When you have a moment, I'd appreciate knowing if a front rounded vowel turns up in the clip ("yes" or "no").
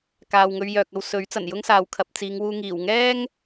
yes